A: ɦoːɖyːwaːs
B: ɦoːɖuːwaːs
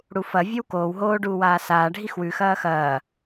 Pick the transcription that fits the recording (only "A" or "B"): B